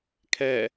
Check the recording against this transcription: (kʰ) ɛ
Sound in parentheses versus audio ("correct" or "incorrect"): correct